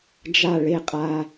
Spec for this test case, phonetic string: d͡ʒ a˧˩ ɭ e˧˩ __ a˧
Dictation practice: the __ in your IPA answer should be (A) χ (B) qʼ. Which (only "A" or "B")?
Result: B